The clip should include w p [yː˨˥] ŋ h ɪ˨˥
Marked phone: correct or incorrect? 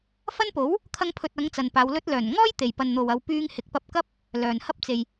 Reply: incorrect